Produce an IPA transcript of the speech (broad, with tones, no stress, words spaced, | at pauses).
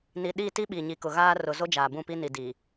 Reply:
ni˨ ɗi˦˨ti˦ ɓi˨ɲi˨kʊ˨ ɣaː˦ rʊ˨ zo˦d͡ʒaː˨ bũ˦˨pi˦ ni˨di˨